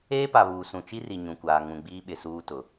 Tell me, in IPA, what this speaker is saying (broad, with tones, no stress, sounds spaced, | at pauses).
eː˦ p a˨ β uː˨ s ũ˨ t͡ʃ i˦ r i˨ ɲ ũ˨ kʷ aː˨ ŋ ũ˨ ɡ͡b iː˦ ɓ ɪ˨ s uː˦ t ʊ˨